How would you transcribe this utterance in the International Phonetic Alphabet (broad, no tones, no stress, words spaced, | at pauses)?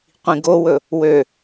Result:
qʷĩɡowɵ | wø